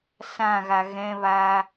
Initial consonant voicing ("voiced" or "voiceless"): voiceless